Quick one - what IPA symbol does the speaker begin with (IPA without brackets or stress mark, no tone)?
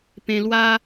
p